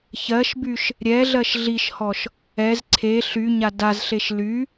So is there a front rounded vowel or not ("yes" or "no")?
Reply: yes